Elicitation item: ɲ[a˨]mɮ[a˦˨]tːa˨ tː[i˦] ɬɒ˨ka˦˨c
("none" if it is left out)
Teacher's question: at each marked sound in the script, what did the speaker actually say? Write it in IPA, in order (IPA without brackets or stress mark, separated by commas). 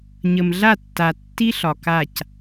ə˨, a˦˨, i˦